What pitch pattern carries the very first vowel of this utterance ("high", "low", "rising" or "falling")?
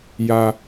high